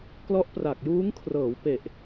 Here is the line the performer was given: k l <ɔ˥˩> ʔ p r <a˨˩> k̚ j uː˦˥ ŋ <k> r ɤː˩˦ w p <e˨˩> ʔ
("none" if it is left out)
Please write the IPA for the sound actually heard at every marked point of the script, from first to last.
ɔ˦˥, a˨˩, kʰ, e˨˩

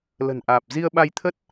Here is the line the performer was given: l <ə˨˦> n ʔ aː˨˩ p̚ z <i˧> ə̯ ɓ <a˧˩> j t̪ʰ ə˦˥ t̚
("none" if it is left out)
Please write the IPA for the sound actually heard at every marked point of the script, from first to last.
ə̤˨˩, i˧, a˧

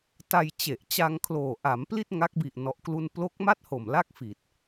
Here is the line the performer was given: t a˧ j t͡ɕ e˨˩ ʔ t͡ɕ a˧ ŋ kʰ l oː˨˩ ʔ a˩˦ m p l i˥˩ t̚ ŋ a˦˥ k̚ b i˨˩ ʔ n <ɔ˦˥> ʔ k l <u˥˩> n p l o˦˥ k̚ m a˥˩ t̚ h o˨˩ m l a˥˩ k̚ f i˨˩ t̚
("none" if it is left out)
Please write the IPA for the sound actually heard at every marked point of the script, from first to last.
ɔ˦˥, u˥˩

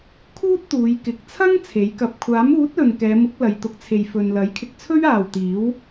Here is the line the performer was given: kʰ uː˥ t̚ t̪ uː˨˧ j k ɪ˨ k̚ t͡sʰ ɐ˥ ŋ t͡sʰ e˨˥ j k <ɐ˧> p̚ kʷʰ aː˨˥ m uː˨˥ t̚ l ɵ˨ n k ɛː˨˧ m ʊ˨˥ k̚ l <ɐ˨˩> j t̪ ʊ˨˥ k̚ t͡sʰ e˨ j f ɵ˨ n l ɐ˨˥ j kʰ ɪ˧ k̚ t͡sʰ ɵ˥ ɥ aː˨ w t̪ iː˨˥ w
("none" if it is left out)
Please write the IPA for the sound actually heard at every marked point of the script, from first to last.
ɐ˧, ɐ˨˧

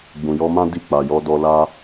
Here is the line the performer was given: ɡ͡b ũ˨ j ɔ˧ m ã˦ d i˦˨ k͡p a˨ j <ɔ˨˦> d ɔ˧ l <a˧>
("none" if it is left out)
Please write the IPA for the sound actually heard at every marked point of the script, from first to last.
ɔ˨˦, a˦

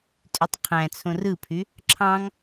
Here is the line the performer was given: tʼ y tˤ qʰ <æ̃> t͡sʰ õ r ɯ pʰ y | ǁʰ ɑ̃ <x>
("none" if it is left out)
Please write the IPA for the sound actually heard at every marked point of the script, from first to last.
æ̃, ŋ

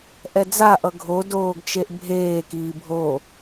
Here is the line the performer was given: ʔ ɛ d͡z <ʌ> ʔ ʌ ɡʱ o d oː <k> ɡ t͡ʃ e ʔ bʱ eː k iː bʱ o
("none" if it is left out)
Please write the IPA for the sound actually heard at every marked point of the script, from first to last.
a, none

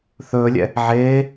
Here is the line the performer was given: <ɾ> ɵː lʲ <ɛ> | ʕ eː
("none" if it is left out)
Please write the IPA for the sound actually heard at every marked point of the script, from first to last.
θ, ɛ̰

